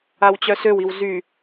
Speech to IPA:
a w t͡ɕ œ s ø w i w z y

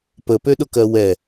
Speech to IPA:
p ə p ø ɗ ʊ k ɜ w ɛ

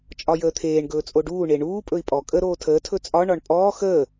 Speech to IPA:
t͡ʃʼ ɒ j əː t̪ʰ eː ɳ ɡ ɵː t͡sʼ o ɖ uː ɳ e ɳ uː pʼ ɵ i̯ pʼ ɔ kʼ ə ɾ oː tʰ əː tʰ ɵ t͡sʼ ɒ ɳ ɒ ɳ pʼ ɔː x əː

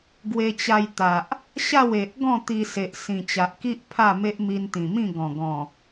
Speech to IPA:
ɡ w e˧ t͡ɕ a˧ j t̪ a˨ ʔ | ɕ a˥˧ w e˨ ʔ ɡ ɔ̃˥˧ t̪ i˧ s e˨ ʔ s ĩ˨˩ t͡ɕ a˨ ʔ k i˦ ʔ pʰ a˥˧ m e˦ ʔ m i˧ n t̪ ĩ˨˩ m ĩ˥˧ ɡ ɔ̃˨˩ ɡ ɔ̃˨˩

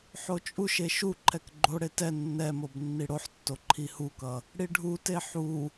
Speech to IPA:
ħ o t͡ʃʼ u ʃ e ʃ u ǃʰ ɛ k ɡ͡ǃ o ɽ e t ɛ nː ɛ m o b nː i ɽ o ħ tː o ǃʰ i h u k ʌ | ɽ i ɖʱ u t e ħ u

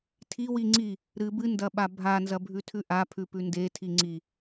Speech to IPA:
tʰ i w i ŋ͡ǀ i | ɾ ɨ b ɨ n d ɐ ɓ a bʱ a n z ɐ bʱ ʉ tʰ ʉ ʔ a pʰ ʉ p ʉ n d e tʰ i ŋ͡ǀ i

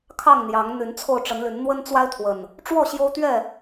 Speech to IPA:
kʰ ɑ˥˨ ŋ n̪ j ɑ˨˦ ŋ n̪ y˨˦ n t͡sʰ o˧ ʊ̯ ʈ͡ʂ ə˨˦ n l y˨˦ n n̪ w ə˦ n t͡s w a˦ ɪ̯ t̪ʰ w ə˨˩ n | ʈ͡ʂ w ɔ˥˨ ɕ j o˦ ʊ̯ t̪ ɥ ɛ˥˨

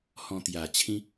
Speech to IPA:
h ɔ̃˧ t̪ j a˨˩ t͡ɕʰ ĩ˦

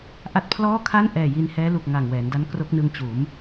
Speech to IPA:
ʔ a˦˥ t̚ pʰ l ɔː˥˩ kʰ a˥˩ n ʔ ɛː˨˩ j i˧ n h ɛː˦˥ l u˨˩ k̚ ŋ a˨˩ ŋ w ɛː˩˦ n d a˦˥ n k r o˦˥ k̚ n ɯ˧ ŋ t͡ɕ uː˩˦ m

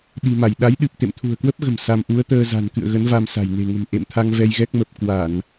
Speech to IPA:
ɗ i̤˨˩ m a˧˩ j ɗ a˨˦ j ɗ ɨ˨˩ p̚ t̪ ḛ˧˨ m t̪ʰ ṳ˨˩ ə̯ k w ə˦˥ p̚ ɣ ə̤˨˩ m s a˧ m ʔ u˨˦ ə̯ t̪ əː˧ z a̤˨˩ n k ɨ̰˧˨ ə̯ ɣ ə˨˦ n v a˧ m s a̤˨˩ j n e̤˨˩ ŋ ə̤˨˩ m ʔ ḛ˧˨ m t̪ʰ a˧ ŋ v ɛ˧ j ɣ ɛ˦˥ k̚ m ə˨˩ p̚ k w a˧˩˨ n

